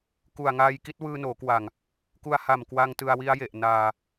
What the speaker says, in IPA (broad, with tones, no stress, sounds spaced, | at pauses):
k u˨˩ a̯ ŋ aː˧ j k i˦˥ t̚ w ɯː˧ n oː˩˦ k w a˨˩ ŋ | k u˧ a̯ h a˨˩ m k w a˧ ŋ t ɯ˧ a̯ w i˦˥ a̯ j e˨˩ ʔ n aː˧